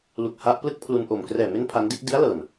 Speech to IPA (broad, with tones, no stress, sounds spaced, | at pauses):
l u˨˩ k̚ h a˦˥ ʔ p l ɯ˥˩ k̚ pʰ l u˧ n ʔ o˨˩ m k r ɛː˨˩ m e˦˥ n pʰ a˦˥ n d i˥˩ ʔ d i˦˥ a̯ l ɤː˨˩ n